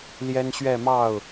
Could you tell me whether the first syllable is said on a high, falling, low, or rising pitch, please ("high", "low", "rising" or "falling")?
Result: high